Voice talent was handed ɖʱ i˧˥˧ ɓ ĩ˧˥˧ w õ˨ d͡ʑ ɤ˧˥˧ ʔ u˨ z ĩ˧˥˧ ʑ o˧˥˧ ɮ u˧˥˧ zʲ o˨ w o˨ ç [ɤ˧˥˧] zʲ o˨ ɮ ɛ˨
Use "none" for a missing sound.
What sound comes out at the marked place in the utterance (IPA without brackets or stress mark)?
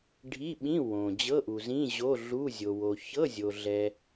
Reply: ɤ˧˥˧